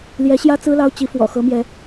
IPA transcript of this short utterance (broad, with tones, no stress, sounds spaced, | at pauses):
l j ɛ˧˥ ɕ j ä˥ t͡s ɹ̩˥ l ɑ˥ ʊ̯ t͡ɕ i˧˥ f w ɔ̰˨˩ x ɤ˧˥ m j ɛ˧˥